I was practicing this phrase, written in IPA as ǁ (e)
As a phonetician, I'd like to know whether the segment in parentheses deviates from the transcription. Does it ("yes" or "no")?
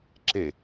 no